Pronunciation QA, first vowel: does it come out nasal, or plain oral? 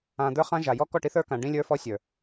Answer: nasal